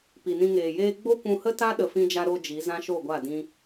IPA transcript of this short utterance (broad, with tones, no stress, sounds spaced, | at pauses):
p i˨ n ĩ˧ ŋ eː˨ j eː˦ ɡ͡b o˦ kʷ ũ˧ h ə˦ t a˦ ɗ ə˧ f ĩ˦ d͡ʒ a˦ ɾ o˧ d͡ʒ i˨˦ z ã˦ ʃ o˦˨ ɡʷ a˦˨ d ĩ˦